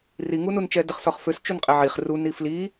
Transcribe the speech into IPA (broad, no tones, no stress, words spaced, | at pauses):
riŋunun t͡ʃɛdəχsɔχføs t͡ʃunqʼɛʕiχ runi fli